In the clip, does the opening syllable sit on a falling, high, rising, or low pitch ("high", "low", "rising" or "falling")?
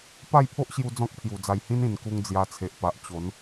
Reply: falling